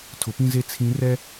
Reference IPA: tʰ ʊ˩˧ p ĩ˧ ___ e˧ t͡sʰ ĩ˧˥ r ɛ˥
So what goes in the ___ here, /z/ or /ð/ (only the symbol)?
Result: z